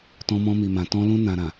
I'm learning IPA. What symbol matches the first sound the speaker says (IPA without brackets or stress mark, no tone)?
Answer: t